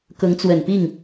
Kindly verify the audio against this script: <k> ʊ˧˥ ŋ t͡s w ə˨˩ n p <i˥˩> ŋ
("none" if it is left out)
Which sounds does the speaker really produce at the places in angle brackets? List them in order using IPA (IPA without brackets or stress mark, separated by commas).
k, i˥˩